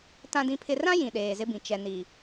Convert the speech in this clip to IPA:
tã˨dĩ˨pʰɪ˨rã˦ jĩ˨ɗeː˨zɪ˦bĩ˨ t͡ʃɛ˨ni˨

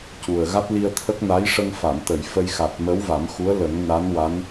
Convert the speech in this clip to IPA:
cu˨˩ə̯ ɣa˦˥t̚li˧ə̯t̪ʰə˦˥k̚ na˧˥jʂə˧ŋfa˨˩˨m t̪ə˨˩˨jfə˧jxa˨˩t̚ mə˧˥w va˨˩˦mxu˧˥ə̯ lə˨˩˦ŋna˧˥nwa˧˥n

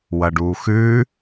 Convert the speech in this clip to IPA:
wɐɖuːxʉː

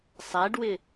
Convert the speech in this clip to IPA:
sˤæɖwɪ

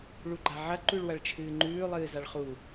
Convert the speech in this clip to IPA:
ɭuɡ͡ǃaʕɐ ǃʉɭwɐɭt͡ʃʰɨːŋ͡ǃʉː lˠɨːzaɭχu

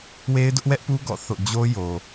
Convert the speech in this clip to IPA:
we˦ɪ̯dʊ˦ʔwɛ˦ʔpu˦ ɡɔ̰˦˨ θo̰˦˨ d͡ʑo˦ jo˨

